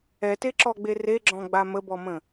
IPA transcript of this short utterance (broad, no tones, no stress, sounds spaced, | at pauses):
ɛ t e ǁ ɔ ɡ͡b e r e ɡ͡ǁ ɔ̃ ɡ͡b a m ə b ɔ m ə̃